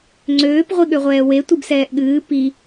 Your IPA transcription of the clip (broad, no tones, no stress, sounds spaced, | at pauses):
ŋ͡ǀ øː p ʁʷ i ɠ ø ʁʷ ɛː w e tʷ ɨ b s ɛː ʔ ɠ ɨː p i